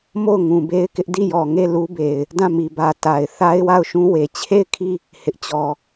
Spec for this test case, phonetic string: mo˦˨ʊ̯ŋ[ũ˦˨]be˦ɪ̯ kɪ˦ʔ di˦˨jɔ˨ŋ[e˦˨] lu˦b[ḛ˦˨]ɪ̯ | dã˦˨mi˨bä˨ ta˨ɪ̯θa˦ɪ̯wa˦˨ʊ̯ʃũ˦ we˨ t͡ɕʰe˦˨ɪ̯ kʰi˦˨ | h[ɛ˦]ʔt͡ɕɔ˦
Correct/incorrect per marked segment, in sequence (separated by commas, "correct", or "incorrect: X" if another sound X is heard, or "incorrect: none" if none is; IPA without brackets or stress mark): incorrect: ũ˨, correct, incorrect: e˨, incorrect: ɪ˦